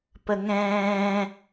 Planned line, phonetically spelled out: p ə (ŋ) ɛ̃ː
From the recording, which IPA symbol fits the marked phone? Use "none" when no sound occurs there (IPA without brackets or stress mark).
ŋ